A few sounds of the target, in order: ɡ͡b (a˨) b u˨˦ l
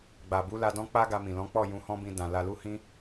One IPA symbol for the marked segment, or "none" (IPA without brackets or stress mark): a˨